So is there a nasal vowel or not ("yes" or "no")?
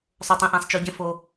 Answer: yes